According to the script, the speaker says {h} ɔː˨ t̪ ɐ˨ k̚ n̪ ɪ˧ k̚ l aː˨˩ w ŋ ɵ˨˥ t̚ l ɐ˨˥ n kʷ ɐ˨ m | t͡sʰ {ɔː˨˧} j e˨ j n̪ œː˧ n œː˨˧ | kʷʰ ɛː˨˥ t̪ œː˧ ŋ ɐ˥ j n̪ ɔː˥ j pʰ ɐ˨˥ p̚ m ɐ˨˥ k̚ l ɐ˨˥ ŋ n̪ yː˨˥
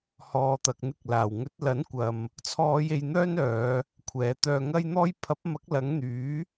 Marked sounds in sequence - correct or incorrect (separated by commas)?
correct, correct